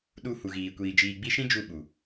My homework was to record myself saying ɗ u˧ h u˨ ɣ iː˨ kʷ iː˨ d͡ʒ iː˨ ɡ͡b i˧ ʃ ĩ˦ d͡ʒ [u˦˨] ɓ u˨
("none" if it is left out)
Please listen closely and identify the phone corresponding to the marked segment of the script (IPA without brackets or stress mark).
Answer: u˦˨